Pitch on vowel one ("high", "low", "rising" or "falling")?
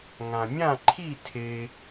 low